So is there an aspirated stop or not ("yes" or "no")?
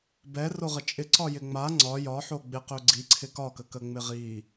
yes